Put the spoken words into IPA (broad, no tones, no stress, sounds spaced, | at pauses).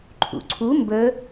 ǃʰ ṵ ǀʰ u m b ə